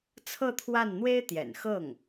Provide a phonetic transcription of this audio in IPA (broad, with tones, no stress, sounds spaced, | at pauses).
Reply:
t͡sʰ ɤ˥˧ t̪ʰ w a˥˩ n n̪ w e˥ ɪ̯ t̪ j ɛ̰˨˩ n x ɤ˥˩ ŋ